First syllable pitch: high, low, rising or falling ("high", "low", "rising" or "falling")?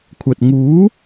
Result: low